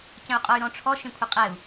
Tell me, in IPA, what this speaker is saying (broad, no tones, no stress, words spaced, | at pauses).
cə̃u̯qʼɔy̯ɾɔ̃ʈ͡ʂʰɔ ʃẽkʷʰəqʼɛu̯